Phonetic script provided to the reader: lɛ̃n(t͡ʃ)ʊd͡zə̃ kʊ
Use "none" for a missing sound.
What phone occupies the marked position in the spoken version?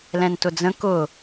t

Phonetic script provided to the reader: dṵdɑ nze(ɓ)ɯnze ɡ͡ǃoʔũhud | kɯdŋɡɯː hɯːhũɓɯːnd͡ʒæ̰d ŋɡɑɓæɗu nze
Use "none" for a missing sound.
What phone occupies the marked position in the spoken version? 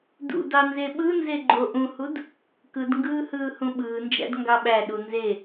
ɓ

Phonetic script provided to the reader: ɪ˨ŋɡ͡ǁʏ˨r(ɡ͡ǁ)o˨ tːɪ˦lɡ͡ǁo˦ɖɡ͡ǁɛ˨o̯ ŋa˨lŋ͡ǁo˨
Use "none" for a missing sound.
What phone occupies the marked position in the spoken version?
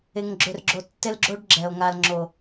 ɡ͡ǁ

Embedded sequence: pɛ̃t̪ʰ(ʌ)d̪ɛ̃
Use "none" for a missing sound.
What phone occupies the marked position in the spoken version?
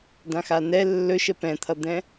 ʌ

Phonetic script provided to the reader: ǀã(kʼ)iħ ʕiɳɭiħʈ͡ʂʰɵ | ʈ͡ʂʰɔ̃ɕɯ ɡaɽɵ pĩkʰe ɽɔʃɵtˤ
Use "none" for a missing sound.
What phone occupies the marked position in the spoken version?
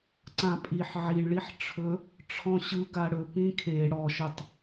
pʼ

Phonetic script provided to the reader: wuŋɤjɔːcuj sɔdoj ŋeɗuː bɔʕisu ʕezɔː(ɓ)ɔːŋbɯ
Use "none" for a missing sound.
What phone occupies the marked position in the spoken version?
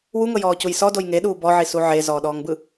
ɗ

